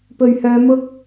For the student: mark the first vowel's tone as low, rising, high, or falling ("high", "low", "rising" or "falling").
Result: low